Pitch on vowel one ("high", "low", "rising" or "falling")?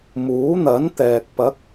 rising